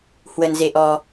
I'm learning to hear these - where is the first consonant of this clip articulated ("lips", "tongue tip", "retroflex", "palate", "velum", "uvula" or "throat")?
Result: throat